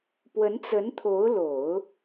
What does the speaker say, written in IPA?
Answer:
pwə˧˥nt͡sə˧˥nt̪ʰo˧˥ʊ̯lo˨˩˦ʊ̯

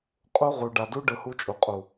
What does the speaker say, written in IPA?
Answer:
qʼu˦ʁu˨ ɖa˨du˦ ɖɯ˨hu˦t͡ʃʼu˨qʼu˨

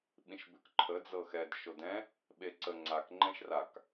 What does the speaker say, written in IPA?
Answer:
ɓĩʃbʉkǃʰə d͡zɤxɛd ʃodɛ̃ | ɓeǀə ŋ͡ǀak ŋ͡ǃɛ̃ʃrak

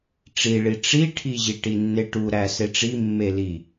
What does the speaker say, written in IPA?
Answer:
ʈ͡ʂiɭi ʈ͡ʂiʈʰiʑi ʈinːeʈuɾæ seʈ͡ʂi mːeli

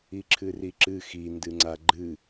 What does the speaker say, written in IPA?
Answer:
iǁʰɨriǁɨ xindɨŋ͡ǀa ɡ͡ǃɨ

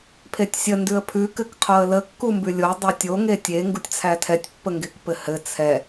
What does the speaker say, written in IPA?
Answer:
pʰetʲsʲə ndʉə̯pʰʉ kɘkqʰoə̯lə kːumbʉlʲo dˤɛtʲo ŋetʲe ŋɡutʲt͡sʰætʰɛtʲ pːəŋɡekpɘhɘ t͡sʰɛ

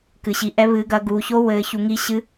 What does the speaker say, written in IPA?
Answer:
kɨ˨˦ɕi˨˦ʔɛ˦˥ βɨː˨˦ɡɐ˨˦ ɡuː˨˦ ço˦˥ wɘː˨˦çu˨˦ ŋi˦˥ɕɨ˦˥

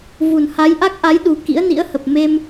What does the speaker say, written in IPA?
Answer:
vu˨˩nha˨˦jʔa˦˥k̚ʔa˨˦j ɗu˨˩ kḭ˧˥ə̯nḭ˧˥ə̯hə˨˩p̚ me˧m

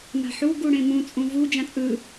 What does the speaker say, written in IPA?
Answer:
ma̤ħu ɡuɽẽmũ t͡sʼũvu d͡ʒãt͡sʼɯ

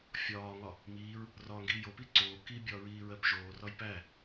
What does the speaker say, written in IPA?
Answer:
fʲɒːŋɒ | miːɹ | rɒːŋɡiːjopi ǀoː kibʲɒː ɹiːɹɜpʒoːrɒj pæ

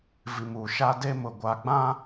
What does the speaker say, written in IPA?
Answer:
vi˨mu˨ʃa˦ de˦mʊ˨ɡʷa˨ɡ͡bã˦

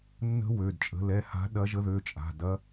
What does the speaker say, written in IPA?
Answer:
nːə̤˦˥wø˩˧˩dt͡ʃʼə̤˨˦ lɛ˩˧˩ha̤˨˦ɗɐ˨˦ ʒə˨˦ðø˩˧˩t͡ʃʼa̤˩˧˩ dɐ˦˥

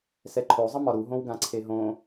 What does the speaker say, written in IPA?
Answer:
sɛǃʰo zˤəmɒɾu ɦõwɡãǀʰeɦõ

